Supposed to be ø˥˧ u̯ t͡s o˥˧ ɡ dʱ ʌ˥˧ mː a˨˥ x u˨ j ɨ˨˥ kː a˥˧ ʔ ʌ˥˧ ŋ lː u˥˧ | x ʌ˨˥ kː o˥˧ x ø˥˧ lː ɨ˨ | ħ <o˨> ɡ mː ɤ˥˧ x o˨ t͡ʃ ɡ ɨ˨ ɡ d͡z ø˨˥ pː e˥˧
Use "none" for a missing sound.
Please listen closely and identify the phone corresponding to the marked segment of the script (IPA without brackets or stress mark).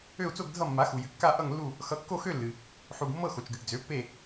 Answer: u˨